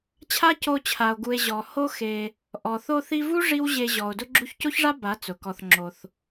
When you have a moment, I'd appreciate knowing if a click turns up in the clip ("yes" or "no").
yes